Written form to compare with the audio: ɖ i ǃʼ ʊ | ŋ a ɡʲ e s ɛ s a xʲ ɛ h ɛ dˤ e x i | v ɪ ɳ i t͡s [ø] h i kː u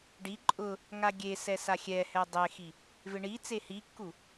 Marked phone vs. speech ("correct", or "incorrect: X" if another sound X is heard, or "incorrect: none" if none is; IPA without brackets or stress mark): incorrect: e